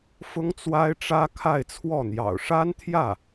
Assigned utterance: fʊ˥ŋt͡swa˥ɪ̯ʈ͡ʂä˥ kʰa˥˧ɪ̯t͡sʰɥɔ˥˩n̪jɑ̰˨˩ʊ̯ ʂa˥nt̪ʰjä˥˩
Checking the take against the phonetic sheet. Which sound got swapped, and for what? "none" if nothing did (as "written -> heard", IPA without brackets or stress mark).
ɥ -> w